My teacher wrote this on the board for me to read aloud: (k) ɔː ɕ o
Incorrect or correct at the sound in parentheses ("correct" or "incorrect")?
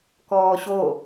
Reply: correct